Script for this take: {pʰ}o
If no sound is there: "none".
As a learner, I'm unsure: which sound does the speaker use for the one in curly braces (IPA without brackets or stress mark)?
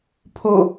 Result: pʰ